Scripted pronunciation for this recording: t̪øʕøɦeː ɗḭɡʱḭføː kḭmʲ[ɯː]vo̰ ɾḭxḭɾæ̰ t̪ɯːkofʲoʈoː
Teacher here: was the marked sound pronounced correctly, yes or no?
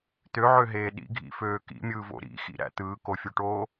yes